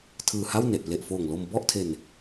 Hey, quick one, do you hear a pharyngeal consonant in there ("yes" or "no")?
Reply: no